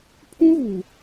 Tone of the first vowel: high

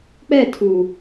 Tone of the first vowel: falling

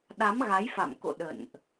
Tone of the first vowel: rising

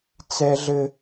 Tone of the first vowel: high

